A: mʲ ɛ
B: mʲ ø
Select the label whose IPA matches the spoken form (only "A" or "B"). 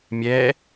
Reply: A